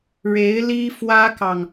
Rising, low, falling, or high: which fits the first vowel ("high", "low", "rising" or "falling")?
rising